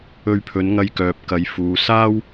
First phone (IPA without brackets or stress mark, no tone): ɵ